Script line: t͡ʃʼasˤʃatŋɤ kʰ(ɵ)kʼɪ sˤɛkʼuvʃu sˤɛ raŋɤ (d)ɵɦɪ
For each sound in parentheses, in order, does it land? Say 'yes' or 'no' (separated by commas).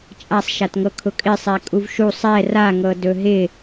no, yes